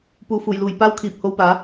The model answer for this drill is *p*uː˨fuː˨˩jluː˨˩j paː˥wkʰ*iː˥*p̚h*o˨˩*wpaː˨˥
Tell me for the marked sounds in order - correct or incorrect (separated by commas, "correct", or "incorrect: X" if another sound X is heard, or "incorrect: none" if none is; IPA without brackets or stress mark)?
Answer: correct, incorrect: iː˨, incorrect: o˧